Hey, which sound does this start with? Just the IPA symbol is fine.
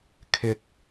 kʰ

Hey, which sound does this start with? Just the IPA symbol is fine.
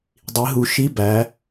dˤ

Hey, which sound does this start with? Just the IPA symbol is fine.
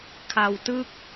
kʰ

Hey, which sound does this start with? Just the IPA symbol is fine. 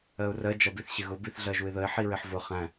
ɜ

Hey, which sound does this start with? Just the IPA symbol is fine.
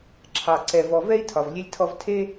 ǁʰ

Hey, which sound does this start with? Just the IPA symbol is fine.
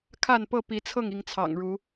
kʰ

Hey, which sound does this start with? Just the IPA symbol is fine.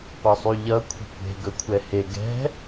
p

